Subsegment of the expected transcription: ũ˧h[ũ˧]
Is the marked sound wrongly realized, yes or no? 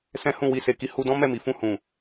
yes